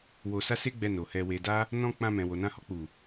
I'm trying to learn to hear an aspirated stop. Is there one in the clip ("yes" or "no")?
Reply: no